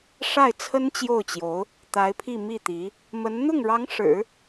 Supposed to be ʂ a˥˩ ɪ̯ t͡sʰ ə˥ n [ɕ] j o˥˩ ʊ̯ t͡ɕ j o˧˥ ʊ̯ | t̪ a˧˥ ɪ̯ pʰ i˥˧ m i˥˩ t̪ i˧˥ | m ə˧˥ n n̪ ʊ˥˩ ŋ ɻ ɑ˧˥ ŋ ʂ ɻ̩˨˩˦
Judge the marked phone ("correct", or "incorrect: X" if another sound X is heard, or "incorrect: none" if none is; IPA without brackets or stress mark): incorrect: t͡ɕ